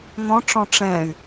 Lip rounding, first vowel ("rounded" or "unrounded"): rounded